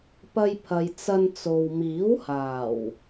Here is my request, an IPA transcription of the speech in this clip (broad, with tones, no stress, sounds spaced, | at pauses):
p ɐ˧ j pʰ ɐ˨ j t͡s ɐ˧ n t͡s o˨ w m iː˨˥ w h aː˨˩ w